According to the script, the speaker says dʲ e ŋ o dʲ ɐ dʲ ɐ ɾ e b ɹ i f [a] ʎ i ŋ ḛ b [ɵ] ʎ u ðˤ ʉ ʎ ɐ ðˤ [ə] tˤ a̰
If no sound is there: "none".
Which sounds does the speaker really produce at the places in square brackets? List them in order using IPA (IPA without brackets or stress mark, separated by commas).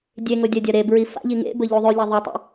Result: a̰, ɵ, ɐ